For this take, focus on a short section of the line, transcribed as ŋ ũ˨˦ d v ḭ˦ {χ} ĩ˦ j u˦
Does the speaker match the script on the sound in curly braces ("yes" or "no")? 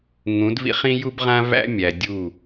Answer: yes